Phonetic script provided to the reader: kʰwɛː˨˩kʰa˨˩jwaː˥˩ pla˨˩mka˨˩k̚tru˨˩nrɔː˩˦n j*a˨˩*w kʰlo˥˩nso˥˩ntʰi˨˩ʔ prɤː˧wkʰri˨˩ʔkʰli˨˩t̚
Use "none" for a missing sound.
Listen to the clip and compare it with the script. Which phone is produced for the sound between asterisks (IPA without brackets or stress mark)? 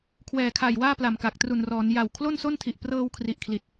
a˨˩